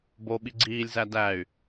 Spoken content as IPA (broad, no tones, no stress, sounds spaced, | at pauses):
b o ɓ i ɡ͡ǀ iː lʲ z æ d æ y̯